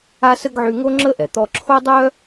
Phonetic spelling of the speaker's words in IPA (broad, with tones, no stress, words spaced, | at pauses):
a˥sə˥ɡʕy˦ ŋo˥ŋ͡ǁə˥ʔɛ˩t̪ɔ˦ ǁʰo˥dˤœ˥